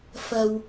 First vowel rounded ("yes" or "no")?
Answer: no